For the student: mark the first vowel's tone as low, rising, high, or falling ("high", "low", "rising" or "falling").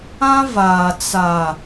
high